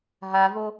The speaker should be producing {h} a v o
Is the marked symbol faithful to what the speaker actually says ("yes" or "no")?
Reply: no